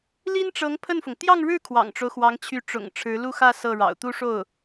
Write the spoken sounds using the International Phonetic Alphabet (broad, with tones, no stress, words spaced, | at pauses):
li˥nʈ͡ʂɤ˧˥ŋ pʰə˥˩nfʊ˩ŋ t̪jɑ˥˧ŋɻɻ̩˥˩ kʰwɑ̰˨˩ŋʈ͡ʂo˦ʊ̯xwɑ˧˥ŋt͡ɕʰy˧˥ ʈ͡ʂʊ̰˨˩ŋ ʈ͡ʂʰɻ̩˧˥lu˥˧xä˥˧ sɤ˥˩ɻɑ̰˨˩ʊ̯ t̪u˥ʂo˥˩ʊ̯